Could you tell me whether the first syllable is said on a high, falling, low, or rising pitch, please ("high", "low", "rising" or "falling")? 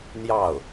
falling